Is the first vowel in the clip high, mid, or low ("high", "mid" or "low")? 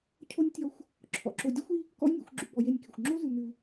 mid